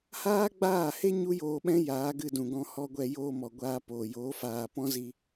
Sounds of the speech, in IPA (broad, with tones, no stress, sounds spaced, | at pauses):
h aː˦ ɡ͡b aː˦˨ h e˦ ɲ u˦ j oː˧ ɓ ɛ̃˦ j aː˨˦ ɡ ɨ˧ d ũ˨ ɡ ɔ̃˧ h ɔ˧ ɡʷ ɛ˧ j oː˧ m ɔ˨ ɡʷ aː˧ p oː˨ j oː˨˦ f aː˨ p ɔ̃˦ z i˧